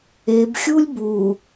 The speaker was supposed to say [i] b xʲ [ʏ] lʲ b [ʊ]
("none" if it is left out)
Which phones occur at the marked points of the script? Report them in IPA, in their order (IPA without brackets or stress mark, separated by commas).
e, u, u